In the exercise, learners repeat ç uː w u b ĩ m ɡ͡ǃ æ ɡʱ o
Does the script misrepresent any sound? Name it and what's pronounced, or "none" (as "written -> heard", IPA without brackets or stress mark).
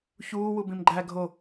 none